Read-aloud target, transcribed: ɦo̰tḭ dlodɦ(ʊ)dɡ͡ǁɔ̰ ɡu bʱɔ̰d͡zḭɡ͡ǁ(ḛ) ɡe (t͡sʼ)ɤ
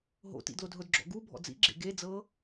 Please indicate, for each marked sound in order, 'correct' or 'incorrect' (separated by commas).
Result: correct, correct, incorrect